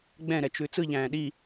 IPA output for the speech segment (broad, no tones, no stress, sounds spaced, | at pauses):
ɡ͡b ɛ̃ ɾ ɛ t͡ʃ ʉ t͡s ɯ ʎ æ̃ː ɗ i